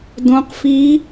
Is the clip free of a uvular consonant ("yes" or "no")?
no